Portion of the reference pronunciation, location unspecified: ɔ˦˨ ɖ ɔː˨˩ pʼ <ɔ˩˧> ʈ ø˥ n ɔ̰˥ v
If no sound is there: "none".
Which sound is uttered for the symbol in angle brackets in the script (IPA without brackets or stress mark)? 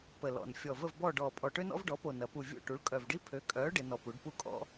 ɔ˨˩